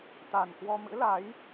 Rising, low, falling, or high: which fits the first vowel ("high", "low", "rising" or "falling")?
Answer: low